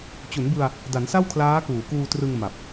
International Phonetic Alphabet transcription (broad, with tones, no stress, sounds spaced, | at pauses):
t͡ɕ u˩˦ n b ɯ˧ a̯ | d a˩˦ n s a˥˩ w kʰ l aː˦˥ k uː˨˩ k uː˧ t r ɯ˧ ŋ m a˨˩ p̚